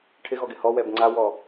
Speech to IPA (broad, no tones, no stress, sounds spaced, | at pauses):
ʈʰ ɪ ɣ ɔ ɡ ɪ h ɔ w ɛ b ŋ͡ǀ a w ɔ